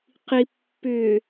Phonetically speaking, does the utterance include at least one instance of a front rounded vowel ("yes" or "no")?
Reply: yes